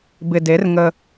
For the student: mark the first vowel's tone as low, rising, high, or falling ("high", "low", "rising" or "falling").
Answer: low